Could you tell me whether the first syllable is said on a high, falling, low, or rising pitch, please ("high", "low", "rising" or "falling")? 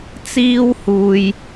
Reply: high